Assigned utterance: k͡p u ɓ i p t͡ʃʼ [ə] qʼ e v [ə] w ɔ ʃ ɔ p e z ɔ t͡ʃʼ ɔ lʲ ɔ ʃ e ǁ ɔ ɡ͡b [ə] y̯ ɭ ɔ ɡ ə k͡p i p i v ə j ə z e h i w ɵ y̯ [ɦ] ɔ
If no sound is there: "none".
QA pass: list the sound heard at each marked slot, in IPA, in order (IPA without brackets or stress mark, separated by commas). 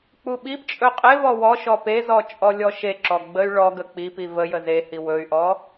ɵ, ɔ, ə, ʔ